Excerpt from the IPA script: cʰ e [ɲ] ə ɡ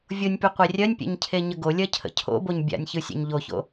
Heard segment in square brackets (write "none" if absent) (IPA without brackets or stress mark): ɲ